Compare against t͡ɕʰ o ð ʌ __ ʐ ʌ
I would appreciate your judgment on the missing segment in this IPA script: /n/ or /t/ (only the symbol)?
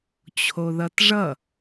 t